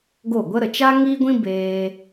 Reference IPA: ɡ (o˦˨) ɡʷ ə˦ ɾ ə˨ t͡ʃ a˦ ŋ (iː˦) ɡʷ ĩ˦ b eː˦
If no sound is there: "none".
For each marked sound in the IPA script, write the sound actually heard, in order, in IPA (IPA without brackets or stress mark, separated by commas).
o˦˨, iː˦